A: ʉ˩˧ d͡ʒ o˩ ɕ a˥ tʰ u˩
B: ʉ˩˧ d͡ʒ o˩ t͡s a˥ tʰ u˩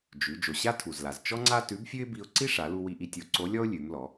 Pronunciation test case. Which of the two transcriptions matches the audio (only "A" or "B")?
A